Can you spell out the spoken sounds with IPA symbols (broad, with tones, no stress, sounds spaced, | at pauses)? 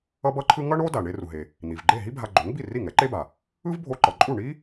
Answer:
ʌ˥ b ʌ˥ ǃʰ ɯ˥ ŋ ʌ˥ ɳ o˥ d a˩ ɳ e˧ r u˩ ɦ e˩ | n̪ i˩ v ɡ͡ǃ e˥˩ ɦ i˥ bʱ a˧ ɡ͡ǃ o˩˥ ŋ b i˥˩ r i˥˩ ŋ ɛ˩˥ ǃ e˥ b a˩ | ɯ˥ v bʱ o˧ ǃ ʌ˩ ǃʼ u˥˩ ɳ i˥